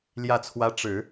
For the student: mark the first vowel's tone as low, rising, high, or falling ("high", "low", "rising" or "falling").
falling